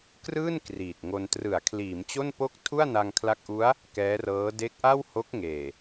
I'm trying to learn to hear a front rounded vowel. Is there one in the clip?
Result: no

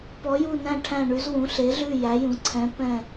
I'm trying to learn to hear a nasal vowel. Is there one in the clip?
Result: yes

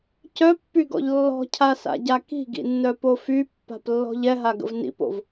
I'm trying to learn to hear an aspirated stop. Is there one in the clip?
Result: yes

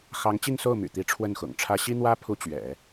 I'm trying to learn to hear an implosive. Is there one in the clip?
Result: no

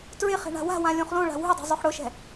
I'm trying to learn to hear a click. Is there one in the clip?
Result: no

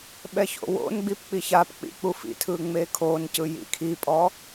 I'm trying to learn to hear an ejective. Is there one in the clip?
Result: yes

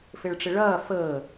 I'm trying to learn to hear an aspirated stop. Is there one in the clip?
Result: no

